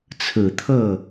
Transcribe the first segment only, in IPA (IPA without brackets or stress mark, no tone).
t͡sʰ